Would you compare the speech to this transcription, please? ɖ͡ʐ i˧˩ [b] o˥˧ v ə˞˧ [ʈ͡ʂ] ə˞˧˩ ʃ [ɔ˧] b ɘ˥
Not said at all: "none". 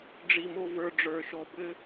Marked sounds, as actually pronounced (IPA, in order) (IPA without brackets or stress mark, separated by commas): m, ɖ͡ʐ, ɔ˧